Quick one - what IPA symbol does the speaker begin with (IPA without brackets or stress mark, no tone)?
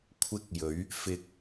kʷʰ